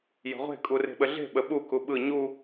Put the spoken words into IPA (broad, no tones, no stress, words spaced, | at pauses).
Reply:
jə̤ʁʷe̤ kʼure̤ɓəɮe̤ ɓəɓu kuɓɯ ɲu